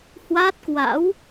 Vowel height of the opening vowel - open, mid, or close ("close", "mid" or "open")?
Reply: open